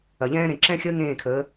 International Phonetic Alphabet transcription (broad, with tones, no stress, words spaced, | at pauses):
ɐ˨ʎɛ̃ː˦ɾẽ˨ ǁɛ̃˦xʲəː˦ ŋẽː˦˨kʰəː˨˦